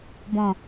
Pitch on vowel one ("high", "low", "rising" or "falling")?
low